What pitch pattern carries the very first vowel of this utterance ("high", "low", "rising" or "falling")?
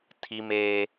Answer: high